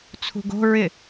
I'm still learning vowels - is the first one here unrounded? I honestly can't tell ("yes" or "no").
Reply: no